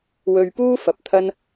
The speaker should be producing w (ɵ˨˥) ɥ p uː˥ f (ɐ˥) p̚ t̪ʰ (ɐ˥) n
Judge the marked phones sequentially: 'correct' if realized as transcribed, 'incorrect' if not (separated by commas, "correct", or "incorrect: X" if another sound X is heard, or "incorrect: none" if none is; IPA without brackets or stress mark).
incorrect: ɵ˧, incorrect: ɐ˧, correct